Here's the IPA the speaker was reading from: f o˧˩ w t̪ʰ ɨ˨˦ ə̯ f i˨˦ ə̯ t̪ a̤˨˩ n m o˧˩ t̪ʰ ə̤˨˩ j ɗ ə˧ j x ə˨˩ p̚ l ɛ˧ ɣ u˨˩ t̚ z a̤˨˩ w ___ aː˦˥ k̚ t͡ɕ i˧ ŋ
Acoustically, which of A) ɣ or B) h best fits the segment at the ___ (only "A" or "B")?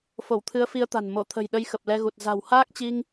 B